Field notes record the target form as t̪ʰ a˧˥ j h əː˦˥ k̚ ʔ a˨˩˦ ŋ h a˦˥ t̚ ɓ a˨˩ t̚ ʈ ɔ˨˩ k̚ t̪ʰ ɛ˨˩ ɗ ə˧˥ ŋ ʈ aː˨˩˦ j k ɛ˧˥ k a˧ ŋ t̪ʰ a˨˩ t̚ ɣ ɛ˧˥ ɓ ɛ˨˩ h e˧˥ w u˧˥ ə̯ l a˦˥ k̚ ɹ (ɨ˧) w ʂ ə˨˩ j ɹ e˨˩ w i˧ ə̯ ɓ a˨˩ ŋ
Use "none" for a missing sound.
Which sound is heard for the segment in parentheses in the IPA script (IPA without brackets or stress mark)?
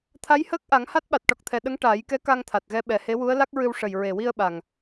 ɨ˧